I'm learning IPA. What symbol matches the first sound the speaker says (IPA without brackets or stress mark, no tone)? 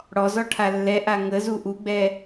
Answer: ɽ